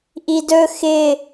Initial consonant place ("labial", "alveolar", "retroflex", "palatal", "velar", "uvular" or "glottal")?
glottal